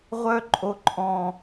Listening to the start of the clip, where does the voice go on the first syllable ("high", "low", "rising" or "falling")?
low